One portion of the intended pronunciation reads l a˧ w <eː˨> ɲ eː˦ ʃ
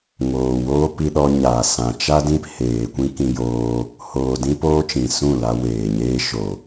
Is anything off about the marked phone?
no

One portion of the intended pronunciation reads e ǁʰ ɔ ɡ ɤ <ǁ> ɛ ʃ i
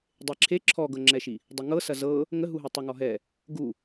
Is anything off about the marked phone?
yes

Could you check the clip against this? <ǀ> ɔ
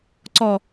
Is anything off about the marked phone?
no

